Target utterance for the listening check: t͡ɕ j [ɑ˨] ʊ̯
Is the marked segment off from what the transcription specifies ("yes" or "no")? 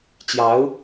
yes